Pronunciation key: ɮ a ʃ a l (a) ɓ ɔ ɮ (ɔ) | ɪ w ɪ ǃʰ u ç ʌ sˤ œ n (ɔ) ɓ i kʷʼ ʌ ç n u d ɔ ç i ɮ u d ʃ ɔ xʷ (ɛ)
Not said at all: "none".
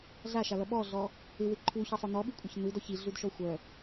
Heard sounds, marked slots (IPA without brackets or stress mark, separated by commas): ʌ, ɔ, ɔ, œ